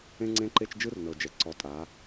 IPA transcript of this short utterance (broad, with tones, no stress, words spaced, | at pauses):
ẽ˦ŋ͡ǀẽ˦ǃe˦t͡ʃ d͡ʒɯ˦rnɤ˨d͡ʒɛ˨ ǀɔ˨˦tʼa˨˦